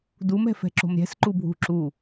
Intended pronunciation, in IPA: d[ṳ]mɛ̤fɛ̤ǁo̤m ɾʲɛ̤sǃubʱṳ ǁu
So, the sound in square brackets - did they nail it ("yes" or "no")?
no